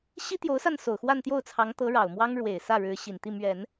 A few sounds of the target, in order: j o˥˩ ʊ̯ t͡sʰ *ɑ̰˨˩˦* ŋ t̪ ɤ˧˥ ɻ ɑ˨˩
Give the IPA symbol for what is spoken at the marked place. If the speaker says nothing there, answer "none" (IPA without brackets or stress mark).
ɑ˧˥